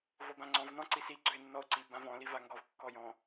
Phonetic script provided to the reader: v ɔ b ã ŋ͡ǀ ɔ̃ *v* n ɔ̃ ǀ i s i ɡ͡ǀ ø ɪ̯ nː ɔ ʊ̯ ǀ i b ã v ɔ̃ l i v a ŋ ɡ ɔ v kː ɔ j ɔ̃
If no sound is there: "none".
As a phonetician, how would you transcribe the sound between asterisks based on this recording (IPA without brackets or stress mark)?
v